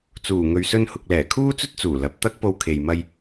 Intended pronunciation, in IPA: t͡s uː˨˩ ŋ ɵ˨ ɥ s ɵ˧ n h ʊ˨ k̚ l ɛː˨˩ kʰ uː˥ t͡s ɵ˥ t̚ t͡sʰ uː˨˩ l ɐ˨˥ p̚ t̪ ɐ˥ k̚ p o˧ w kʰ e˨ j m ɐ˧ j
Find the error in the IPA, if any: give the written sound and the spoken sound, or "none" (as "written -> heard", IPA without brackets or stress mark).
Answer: t͡sʰ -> t͡s